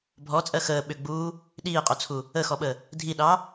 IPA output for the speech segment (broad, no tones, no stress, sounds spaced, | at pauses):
bʱ ɔ t͡sʼ ɜ x əː ɓ ʏ ɡ͡b uː | ɗ iː qʼ o t͡sʰ u | ə x ɔ ɓ ə | dʱ i ɗ ɑ